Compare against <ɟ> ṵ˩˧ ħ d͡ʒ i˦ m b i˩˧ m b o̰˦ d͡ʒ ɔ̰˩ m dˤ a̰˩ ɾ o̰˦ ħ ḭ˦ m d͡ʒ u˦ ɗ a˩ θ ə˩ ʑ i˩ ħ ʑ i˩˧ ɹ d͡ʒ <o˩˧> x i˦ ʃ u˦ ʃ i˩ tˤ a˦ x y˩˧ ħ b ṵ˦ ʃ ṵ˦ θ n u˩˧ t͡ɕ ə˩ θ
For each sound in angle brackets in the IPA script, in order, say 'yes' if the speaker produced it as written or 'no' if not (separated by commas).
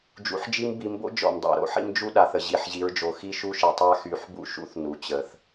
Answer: no, no